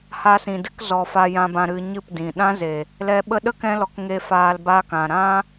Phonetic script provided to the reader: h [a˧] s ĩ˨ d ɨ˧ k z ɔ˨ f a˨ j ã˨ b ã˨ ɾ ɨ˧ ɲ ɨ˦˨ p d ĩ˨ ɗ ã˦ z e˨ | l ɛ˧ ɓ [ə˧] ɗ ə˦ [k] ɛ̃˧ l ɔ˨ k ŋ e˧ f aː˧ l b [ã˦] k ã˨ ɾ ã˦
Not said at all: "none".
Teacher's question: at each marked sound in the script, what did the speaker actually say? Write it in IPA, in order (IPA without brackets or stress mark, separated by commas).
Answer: a˧, ə˧, k, a˦